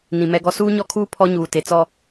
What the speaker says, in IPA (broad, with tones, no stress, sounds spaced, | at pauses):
n ĩ˨ m ɛ˦ ɡ ɔ˦ s uː˦ ɲ ɔ˦ kʰ uː˦ pʰ ɔ˦ ɲ uː˨ t e˨ t͡s ɔ˦